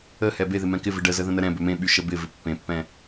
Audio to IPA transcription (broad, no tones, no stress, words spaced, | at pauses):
əhɛ beðɪmɛ̃ kɪvɪ ɖəzəðə̃nə ɾɛ̃bʏ mẽɓyʃə bɪvɪ pːẽpːɛ̃